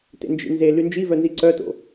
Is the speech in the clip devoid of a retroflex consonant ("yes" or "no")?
yes